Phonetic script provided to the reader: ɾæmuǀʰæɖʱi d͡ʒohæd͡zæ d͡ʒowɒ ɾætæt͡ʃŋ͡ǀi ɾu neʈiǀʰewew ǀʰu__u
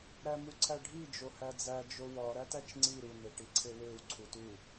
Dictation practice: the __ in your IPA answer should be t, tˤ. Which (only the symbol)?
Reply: t